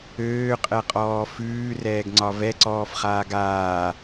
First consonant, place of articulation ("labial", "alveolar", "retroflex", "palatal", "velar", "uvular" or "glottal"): uvular